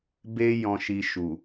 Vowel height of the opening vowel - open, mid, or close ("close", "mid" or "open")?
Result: mid